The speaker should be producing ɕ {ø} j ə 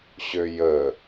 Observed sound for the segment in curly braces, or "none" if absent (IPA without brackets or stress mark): ø